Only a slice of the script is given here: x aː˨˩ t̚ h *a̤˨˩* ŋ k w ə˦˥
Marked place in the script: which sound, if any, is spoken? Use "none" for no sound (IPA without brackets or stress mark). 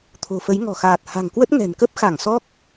a̤˨˩